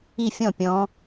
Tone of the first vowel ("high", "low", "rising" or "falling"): falling